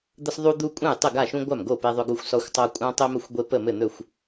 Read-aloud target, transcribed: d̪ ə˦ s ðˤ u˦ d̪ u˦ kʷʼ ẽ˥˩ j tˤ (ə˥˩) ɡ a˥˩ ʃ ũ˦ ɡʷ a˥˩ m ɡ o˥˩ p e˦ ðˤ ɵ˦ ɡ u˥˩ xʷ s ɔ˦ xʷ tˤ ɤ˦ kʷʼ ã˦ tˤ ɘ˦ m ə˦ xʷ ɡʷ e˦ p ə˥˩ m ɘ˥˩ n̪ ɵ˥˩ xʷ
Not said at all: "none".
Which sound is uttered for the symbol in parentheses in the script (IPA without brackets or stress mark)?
ə˥˩